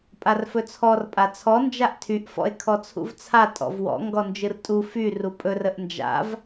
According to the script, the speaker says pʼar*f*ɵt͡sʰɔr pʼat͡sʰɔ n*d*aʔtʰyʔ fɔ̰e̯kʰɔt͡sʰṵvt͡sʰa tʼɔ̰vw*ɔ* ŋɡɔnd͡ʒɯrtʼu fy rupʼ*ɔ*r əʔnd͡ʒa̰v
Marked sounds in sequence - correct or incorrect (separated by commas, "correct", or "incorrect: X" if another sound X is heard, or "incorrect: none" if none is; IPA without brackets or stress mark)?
correct, incorrect: d͡ʒ, incorrect: ɔ̰, incorrect: ɵ